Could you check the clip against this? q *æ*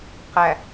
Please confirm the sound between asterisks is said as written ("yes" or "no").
yes